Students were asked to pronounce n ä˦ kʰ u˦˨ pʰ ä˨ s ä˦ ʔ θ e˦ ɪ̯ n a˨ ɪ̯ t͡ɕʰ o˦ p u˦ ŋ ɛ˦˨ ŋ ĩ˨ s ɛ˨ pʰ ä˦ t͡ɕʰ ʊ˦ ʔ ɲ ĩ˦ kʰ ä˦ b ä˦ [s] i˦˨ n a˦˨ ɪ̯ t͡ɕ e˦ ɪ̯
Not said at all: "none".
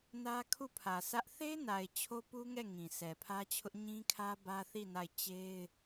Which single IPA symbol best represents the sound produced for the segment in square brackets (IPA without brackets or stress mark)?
θ